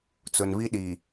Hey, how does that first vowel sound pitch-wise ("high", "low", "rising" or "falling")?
low